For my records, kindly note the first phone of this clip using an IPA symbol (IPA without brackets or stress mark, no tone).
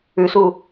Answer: ʉ